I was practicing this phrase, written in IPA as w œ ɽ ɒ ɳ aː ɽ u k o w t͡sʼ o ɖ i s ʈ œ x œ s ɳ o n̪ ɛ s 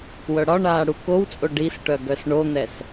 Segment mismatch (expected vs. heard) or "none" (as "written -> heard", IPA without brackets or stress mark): x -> ɡ